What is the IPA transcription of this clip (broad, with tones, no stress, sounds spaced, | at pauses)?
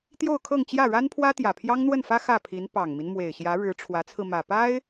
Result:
t̪ j o˥˧ ʊ̯ kʰ ɤ˥˧ ŋ t͡ɕ j ä˥˩ ɻ a˥ n pʰ w ä˥ t̪ j ä˨˩ pʰ j ɑ˥ ŋ n̪ w ə˥˩ n f ä˥ x ä˥˩ pʰ i˧˥ n p ɑ˨˩ ŋ m i˦ n m w e˨˩ ɪ̯ ɕ j ä˧˥ ɻ ɻ̩˧˥ ʈ͡ʂʰ w ä˧˥ t͡sʰ ɹ̩˧ m ä˨˩ p a˥ ɪ̯